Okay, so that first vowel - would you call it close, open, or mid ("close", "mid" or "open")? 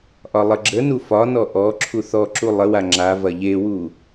open